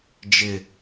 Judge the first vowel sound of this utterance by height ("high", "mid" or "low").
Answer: high